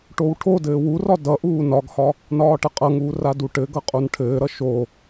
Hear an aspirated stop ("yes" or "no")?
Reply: yes